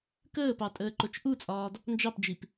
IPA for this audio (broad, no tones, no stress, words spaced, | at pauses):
kəːpɑ tʼəːǃot͡ʃʔut͡sʼɒːd | nd͡ʒɑpd͡ʒip